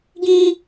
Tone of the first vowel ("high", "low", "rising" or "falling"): high